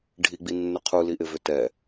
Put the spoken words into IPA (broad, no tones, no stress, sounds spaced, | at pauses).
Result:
ɖʱ i ɡ͡b i nː ʏ qʰ u l i ʔ ɪ v ʏ t ɛ